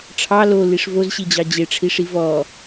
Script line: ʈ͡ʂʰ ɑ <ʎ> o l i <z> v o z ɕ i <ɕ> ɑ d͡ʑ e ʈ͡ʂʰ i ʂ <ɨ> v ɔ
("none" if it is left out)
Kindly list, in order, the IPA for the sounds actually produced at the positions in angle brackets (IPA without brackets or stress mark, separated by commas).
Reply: l, ʂ, d͡ʑ, i